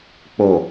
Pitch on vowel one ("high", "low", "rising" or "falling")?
low